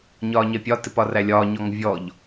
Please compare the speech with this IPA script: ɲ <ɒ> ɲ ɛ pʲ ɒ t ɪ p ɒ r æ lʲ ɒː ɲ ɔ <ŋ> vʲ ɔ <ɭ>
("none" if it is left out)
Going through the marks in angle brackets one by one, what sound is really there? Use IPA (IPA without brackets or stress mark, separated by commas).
ɒː, ŋ, ʎ